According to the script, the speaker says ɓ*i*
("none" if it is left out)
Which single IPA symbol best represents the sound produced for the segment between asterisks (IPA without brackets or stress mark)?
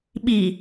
i